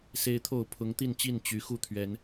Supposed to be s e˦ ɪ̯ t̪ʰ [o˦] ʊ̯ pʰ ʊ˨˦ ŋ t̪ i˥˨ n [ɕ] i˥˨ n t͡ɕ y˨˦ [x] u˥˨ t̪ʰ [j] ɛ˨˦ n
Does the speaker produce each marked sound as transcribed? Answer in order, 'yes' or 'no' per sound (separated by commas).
no, no, yes, no